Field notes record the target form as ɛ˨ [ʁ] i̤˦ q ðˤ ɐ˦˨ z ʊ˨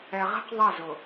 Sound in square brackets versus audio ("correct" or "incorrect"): correct